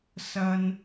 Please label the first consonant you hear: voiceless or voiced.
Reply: voiceless